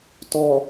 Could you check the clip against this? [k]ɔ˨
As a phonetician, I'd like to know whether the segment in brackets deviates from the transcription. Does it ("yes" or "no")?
yes